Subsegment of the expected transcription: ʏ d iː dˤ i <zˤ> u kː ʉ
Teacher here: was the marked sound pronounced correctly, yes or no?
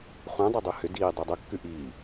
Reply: no